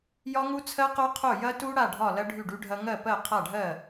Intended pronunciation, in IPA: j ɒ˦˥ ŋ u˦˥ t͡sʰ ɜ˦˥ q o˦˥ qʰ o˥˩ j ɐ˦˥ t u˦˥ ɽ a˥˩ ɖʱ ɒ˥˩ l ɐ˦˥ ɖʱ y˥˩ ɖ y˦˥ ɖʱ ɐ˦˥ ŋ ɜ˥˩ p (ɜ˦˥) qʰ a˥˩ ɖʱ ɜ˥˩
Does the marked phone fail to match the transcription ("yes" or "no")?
yes